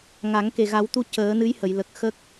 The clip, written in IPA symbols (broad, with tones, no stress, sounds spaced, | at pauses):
ŋ a˨˩˦ ŋ k e˨˩ ɣ a˨˩˦ w t̪ u˧ c əː˨˩˦ n ɨ˧˥ j h ə˨˩˨ j l ə˨˩ k̚ x ə˦˥ k̚